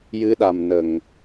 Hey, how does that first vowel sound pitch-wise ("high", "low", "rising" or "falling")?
rising